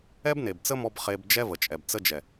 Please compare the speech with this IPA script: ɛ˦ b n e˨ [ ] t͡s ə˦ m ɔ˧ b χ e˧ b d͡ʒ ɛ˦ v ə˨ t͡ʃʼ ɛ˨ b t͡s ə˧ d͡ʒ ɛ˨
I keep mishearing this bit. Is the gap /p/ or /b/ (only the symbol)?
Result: b